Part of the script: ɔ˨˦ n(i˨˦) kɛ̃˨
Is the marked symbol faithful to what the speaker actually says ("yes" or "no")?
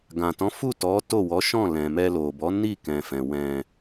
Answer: no